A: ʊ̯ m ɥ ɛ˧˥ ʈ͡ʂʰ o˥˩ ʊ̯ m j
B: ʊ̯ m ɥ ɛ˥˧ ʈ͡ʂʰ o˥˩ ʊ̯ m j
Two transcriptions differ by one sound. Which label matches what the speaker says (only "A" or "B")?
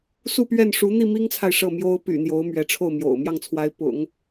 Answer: A